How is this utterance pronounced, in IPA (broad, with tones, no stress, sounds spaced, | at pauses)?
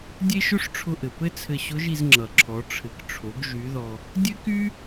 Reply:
dʲ e˥ ʃ ʊ˥ ʂ ʈ͡ʂʰ ʊ˧ ʔ ɘ˩ p ɘ˥ t͡sʰ ɘ˧ ɕ ʊ˧˥ ʒ i˧ z ŋ͡ǁ ʌ˩ ǁʰ ɔ˩˧ ʈ͡ʂʰ ɘ˩˧ k ʈ͡ʂʰ o˩˧ ɡ ʒ y˩˧ ð ɔ˩ | dʲ ɘ˥ k y˥